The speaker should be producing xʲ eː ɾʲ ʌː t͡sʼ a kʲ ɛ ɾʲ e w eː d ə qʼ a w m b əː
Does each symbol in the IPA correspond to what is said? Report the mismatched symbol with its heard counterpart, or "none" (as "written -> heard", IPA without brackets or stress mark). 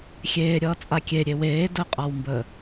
ɛ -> e